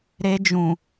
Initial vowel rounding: unrounded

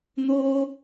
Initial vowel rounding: rounded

